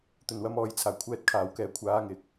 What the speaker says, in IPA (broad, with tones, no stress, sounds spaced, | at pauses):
t̪ ɵ˨˩ n w ɐ˨˧ m ɔː˨ j t͡sʰ aː˨˩ kʷʰ ɛː˧ t̚ kʰ aː˨˩ w k ɛː˨ kʷʰ aː˨˧ ŋ ɪ˨ k̚